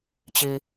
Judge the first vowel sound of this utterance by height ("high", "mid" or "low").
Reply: high